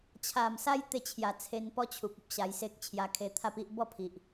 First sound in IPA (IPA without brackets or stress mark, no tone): t͡ɕʰ